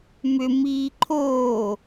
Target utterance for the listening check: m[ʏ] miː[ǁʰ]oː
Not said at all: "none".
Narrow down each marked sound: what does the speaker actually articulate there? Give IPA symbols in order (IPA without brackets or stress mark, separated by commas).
ʏ, ǃʰ